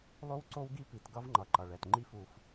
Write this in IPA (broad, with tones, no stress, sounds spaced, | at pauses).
lˠ o˦ w ǀ o˦ w ɡ i˦ p i˨ t ɡ ʌ˦ v ŋ͡ǃ ʌ˨ ǃ ʌ˨ ɭ ɛ˨ t ŋ͡ǃ i˦ f u˨ f